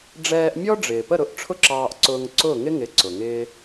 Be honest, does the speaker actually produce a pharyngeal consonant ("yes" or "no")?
no